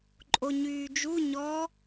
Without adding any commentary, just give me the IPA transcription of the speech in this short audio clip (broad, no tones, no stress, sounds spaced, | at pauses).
ǃʼ o ɲ yː d͡ʒ u ɲ ɔ